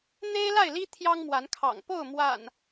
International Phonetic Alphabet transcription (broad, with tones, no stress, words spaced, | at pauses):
n̪e˦ɪ̯la˥˨ɪ̯li˦ t̪ʰjɑ˦ŋmwa˨˦nkʰɑ̰˨˩ŋ po˥˨ʊ̯mwa̰˨˩n